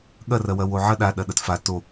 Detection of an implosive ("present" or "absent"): present